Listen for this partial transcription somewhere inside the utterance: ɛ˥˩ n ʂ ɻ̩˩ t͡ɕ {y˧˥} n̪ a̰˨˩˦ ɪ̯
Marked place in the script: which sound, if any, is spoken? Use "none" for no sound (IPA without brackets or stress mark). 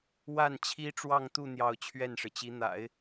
i˧˥